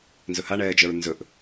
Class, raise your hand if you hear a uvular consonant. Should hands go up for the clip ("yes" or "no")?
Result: no